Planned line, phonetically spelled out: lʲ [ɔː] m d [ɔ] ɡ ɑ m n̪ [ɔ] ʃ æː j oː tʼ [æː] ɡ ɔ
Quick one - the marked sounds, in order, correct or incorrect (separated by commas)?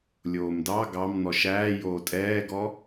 incorrect, incorrect, correct, incorrect